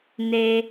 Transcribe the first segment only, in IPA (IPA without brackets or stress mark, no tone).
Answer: n